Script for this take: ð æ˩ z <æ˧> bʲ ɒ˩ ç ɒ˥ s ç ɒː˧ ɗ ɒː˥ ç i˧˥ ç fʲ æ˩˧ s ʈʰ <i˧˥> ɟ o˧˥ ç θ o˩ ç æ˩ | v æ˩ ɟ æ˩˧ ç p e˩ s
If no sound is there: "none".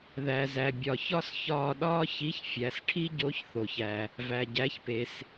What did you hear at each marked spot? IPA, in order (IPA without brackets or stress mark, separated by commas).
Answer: æ˩, i˥